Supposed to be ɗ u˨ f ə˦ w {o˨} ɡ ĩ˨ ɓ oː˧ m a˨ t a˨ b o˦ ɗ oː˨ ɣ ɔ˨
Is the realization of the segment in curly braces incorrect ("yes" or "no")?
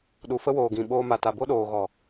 yes